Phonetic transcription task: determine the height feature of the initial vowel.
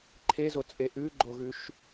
mid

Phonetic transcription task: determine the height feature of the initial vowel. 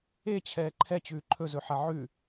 mid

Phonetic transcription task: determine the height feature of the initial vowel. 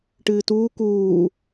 high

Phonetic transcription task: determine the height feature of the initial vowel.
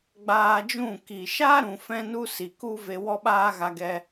low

